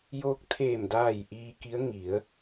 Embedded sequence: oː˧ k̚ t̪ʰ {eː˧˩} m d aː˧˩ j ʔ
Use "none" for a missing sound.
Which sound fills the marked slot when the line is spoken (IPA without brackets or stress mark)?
eː˧˩